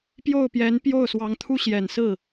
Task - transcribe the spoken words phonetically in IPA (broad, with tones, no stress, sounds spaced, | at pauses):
p j o˥˩ ʊ̯ p j ɛ˧˥ n p j o˥˩ ʊ̯ s w ɑ˧˥ ŋ t̪ʰ u˥ ɕ j ɛ˨˩ n s ɹ̩˥˩